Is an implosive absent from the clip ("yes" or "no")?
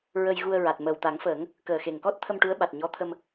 no